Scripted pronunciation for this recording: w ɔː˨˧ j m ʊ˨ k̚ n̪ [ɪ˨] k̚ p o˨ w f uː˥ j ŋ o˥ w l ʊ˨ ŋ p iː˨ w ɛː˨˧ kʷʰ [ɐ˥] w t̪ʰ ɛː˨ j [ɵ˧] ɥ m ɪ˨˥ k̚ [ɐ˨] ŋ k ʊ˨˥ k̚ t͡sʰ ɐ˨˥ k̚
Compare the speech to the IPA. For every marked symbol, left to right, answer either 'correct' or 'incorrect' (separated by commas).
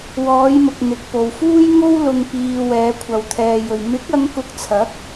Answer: correct, incorrect, incorrect, incorrect